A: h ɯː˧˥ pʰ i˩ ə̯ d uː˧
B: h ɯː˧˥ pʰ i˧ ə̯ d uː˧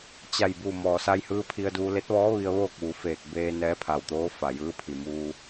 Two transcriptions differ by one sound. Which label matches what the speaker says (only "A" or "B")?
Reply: B